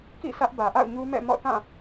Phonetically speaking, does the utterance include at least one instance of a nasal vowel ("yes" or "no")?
yes